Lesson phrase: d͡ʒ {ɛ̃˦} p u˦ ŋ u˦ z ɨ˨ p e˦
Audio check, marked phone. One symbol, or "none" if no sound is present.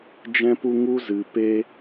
ɛ̃˦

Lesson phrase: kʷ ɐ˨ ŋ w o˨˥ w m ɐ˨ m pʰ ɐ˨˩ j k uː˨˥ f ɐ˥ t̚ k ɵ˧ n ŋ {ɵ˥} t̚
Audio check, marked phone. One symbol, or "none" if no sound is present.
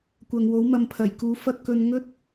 ɵ˥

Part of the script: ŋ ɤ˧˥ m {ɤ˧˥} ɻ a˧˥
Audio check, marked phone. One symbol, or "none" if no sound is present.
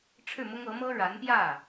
ɤ˥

